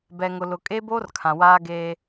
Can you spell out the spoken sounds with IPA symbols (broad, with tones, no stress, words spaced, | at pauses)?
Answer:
bɛ˨ ŋʊ˨lʊ˨ kʼeː˦boː˦r kʰã˨waː˦ ɡeː˦